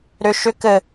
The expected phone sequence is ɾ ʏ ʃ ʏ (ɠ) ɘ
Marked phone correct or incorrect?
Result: incorrect